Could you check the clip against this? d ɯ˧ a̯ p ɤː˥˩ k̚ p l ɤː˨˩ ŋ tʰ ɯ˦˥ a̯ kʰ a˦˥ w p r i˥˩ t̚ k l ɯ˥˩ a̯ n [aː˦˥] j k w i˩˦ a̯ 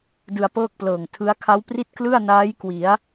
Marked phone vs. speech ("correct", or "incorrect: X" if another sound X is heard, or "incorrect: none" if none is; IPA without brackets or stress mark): correct